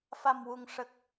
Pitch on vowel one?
low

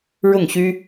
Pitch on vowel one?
falling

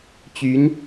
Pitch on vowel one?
rising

